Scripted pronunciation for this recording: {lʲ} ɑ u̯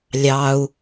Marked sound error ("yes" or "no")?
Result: no